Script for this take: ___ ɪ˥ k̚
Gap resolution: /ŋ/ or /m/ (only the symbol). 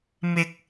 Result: m